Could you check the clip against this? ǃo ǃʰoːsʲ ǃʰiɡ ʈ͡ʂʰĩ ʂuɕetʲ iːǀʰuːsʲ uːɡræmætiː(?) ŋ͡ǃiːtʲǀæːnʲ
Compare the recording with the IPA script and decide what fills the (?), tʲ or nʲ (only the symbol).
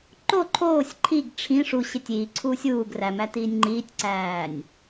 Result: nʲ